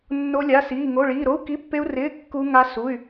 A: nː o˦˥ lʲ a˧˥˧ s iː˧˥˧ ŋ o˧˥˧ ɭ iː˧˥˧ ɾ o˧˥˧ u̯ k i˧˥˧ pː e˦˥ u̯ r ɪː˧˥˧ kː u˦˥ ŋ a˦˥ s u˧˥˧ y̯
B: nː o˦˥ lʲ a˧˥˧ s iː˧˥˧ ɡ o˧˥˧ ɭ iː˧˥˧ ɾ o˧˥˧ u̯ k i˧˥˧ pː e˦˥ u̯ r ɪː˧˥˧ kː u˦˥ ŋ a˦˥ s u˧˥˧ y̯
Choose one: A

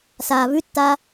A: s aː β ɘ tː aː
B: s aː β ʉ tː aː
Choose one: B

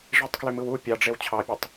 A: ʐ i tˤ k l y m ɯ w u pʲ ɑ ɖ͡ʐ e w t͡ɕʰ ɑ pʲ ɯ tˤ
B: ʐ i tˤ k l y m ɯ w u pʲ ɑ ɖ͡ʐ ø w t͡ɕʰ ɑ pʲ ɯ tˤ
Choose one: A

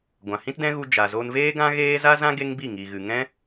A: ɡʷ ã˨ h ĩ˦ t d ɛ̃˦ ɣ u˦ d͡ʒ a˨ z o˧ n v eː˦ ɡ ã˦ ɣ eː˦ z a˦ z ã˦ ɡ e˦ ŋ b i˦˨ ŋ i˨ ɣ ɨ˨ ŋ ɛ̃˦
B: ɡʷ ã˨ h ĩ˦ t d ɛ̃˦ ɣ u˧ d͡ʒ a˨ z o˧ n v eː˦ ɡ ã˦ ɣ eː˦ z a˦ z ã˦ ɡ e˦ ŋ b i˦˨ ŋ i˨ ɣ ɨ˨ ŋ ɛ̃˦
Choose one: B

